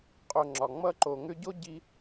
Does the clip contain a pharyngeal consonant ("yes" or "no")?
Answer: no